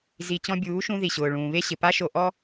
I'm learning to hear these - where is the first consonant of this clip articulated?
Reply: tongue tip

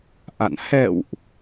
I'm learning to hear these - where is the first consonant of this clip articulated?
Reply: throat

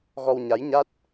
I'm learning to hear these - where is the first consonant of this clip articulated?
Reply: velum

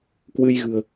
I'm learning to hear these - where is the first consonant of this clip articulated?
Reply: velum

